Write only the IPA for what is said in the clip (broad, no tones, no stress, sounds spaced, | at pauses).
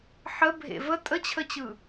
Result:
ħ ə bʱ ḛ v ə tʼ ə t͡ɕʰ ə t͡ɕ ɯ